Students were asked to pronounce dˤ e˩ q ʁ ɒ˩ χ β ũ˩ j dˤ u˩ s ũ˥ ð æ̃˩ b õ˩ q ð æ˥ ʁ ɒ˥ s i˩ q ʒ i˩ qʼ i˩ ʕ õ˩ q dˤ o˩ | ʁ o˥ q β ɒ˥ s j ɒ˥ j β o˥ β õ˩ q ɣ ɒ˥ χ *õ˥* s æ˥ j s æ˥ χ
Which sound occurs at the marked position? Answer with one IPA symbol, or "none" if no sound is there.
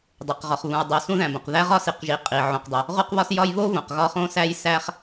õ˥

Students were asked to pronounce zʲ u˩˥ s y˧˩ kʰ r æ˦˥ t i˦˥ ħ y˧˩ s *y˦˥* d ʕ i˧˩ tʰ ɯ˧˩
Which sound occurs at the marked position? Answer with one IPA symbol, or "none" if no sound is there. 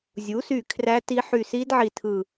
i˦˥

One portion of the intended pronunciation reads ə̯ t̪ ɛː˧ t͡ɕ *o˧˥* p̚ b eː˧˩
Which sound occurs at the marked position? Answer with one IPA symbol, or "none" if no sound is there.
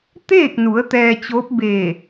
o˧˥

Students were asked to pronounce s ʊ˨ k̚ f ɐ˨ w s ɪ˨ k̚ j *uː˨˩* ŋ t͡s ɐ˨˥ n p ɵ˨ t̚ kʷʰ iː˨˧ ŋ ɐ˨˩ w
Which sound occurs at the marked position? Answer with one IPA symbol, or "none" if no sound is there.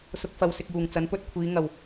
uː˨˩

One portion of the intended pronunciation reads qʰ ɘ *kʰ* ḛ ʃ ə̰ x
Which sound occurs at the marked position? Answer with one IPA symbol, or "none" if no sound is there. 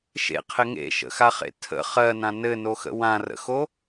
ŋ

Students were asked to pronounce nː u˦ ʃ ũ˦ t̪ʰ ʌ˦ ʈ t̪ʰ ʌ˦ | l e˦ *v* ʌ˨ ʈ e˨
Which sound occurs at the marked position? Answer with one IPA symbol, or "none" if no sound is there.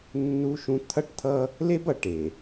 b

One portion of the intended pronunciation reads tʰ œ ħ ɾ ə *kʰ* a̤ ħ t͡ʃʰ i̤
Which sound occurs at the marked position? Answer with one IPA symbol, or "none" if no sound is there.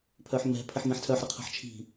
qʰ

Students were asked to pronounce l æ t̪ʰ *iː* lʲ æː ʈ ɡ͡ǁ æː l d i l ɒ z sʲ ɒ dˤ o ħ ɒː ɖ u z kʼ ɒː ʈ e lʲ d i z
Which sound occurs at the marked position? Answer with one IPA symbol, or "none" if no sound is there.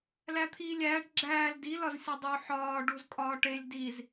iː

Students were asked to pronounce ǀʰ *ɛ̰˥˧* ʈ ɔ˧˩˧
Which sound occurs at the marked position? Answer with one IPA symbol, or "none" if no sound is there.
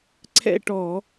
ɛ̰˥˧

